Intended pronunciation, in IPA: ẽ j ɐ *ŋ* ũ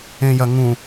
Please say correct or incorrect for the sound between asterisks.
correct